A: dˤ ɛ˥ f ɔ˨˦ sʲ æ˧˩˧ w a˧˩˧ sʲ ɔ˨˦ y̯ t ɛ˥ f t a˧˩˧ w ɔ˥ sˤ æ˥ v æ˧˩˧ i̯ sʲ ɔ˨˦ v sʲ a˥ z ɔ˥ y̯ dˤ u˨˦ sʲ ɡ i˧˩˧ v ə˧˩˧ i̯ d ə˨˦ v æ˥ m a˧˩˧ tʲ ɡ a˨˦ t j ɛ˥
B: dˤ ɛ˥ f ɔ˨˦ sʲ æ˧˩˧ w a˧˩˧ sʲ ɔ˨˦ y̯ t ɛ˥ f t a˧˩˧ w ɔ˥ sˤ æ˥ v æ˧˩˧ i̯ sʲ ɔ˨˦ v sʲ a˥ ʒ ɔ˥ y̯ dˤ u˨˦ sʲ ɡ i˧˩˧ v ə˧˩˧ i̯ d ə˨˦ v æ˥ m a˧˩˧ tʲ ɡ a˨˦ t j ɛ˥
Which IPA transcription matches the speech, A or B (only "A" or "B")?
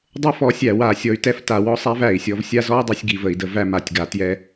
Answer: A